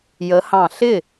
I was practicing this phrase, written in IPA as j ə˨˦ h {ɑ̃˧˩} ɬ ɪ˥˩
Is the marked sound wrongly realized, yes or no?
no